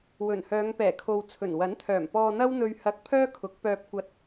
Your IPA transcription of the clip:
w ɵ˨˩ n h œː˨˧ ŋ p ɛː˨˩ kʰ o˨ w t͡sʰ ɵ˨˩ n w ɐ˨˥ n t̪ʰ œː˨˩ m p ɔː˧ n̪ ɐ˥ w n̪ ɵ˧ ɥ h ɐ˧ k̚ pʰ œː˥ kʰ ʊ˨˥ k̚ p œː˧ p̚ kʷ ɐ˧ t̚

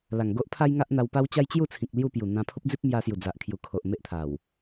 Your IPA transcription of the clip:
l a˨˩ ŋ ɡ o˦ ʔ pʰ a˦ j ŋ a˦ ʔ n̪ a˧ w p a˦ w t͡ɕ a˦ j t͡ɕ j u˥˧ t͡sʰ ĩ˨ k̚ l j u˥˧ p j u˨˩ n̪ ã˧ pʰ o˦ p̚ d͡z i˦ p̚ m j a˧ s j u˨˩ d͡z a˨ ʔ kʰ j u˨˩ kʰ o˨ ʔ m e˦ ʔ t̪ʰ a˨˩ w

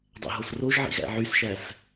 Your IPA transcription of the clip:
dˤ æ̰ ɦ o s r o ʒ ʕ ḭ ɣ æ̰ ʕ y s ʃ æ s

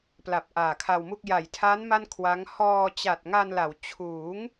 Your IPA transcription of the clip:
p l a˨˩ p̚ ʔ aː˨˩ kʰ a˧ w m u˥˩ k̚ j a˨˩ j tʰ a˦˥ n m a˥˩ n kʰ w a˦˥ ŋ h ɔː˧ t͡ɕ a˨˩ t̚ ŋ a˧ n l a˩˦ w t͡ɕʰ uː˩˦ ŋ

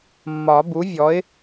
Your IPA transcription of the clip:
mː ɒ˨˩˦ b u˩˥ vʲ ɔ˩˥ ɪ̯

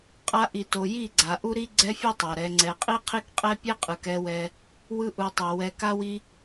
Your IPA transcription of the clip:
qʼ a˧ ʔ i˨ t o˨ j i˦˨ ɡ͡ǀ a˨ ʔ u˦ ɾ i˦ ɡ͡ǀ ɛ˦ fʲ o˦ tˤ a˨ ɾ ɛ˨ ŋ͡ǀ ɛ˨ qʼ i˦ qʰ i˦ k qʼ ɛ˦ pʲ ɛ˦ qʼ ɯ˨ k ɛ˧ w ɛ˧ | w ɯ˧ ʔ u˨ tˤ ɛ˨ w ɛ˨ k a˧ w i˧

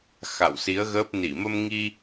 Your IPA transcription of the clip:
x a̰˧˨ w s i˨˦ ə̯ ɣ əː˦˥ p̚ n i˧˩ m ə˧ m ŋ i˧

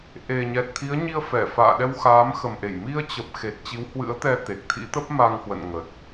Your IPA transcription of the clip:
ʔ e˨˩ ɲ ɛ˨˩ t̚ t̪ʰ i˨˦ ə̯ ɲ i˧ ə̯ f ɛ˧˩ f a̰ː˧˨ ɗ ɛ˧ w x aː˨˦ m x ə˨˩ m ʔ e˧˩ j m i˧ ə̯ t͡ɕ ə˨˩ p̚ x e˨˩ t̚ t͡ɕ i˨˦ w h w ɨ̰˧˥ ə̯ t̪ ɛ˧ t̪ e˨˩ k̚ t̪ʰ ḭ˧˥ t̪ ə˦˥ p̚ m a˧ ŋ h w ə̰˧˨ n ŋ ə˨˩ t̚

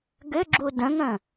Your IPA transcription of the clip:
ɡ ʏ ɡ͡ǁ u d ə̃ ŋ ə̃

